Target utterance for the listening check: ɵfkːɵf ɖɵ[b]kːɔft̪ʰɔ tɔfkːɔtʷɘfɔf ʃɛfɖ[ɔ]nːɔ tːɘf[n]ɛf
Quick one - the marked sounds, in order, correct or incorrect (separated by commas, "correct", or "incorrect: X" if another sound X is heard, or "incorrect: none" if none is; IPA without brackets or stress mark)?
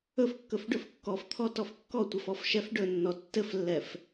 incorrect: f, incorrect: ɵ, incorrect: lː